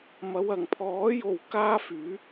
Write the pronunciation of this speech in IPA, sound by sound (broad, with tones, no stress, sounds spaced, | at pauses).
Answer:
m ɐ˨˧ w ɐ˨˩ ŋ pʰ ɔː˨˥ j o˨ w k aː˥ f yː˨˥